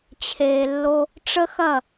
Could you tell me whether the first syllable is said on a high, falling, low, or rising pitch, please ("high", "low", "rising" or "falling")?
low